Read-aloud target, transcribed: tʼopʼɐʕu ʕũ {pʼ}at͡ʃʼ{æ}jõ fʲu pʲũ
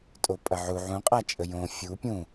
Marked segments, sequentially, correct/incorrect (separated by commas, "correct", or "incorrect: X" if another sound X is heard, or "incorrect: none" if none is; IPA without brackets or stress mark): incorrect: qʼ, incorrect: ə